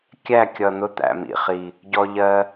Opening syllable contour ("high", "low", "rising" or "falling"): falling